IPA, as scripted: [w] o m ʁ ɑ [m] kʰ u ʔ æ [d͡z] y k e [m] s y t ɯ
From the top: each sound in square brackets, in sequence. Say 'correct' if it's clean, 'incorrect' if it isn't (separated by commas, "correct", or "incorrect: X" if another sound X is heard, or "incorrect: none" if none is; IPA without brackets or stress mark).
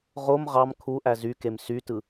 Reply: incorrect: ʁ, correct, incorrect: z, correct